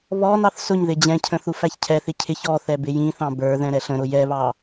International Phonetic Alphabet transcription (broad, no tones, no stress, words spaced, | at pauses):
βɔnɑθ sʊɲ ðɪd͡ʑɛ̃cʰə̃ θufæçcʰɛθɪ cʰɪç ɔ θɛbɪjĩθɑ̃ bə˞ðɛ̃ ɾɛɬə̃ɾʊ jɛβɑ